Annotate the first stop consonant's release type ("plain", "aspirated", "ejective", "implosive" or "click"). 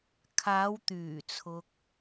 aspirated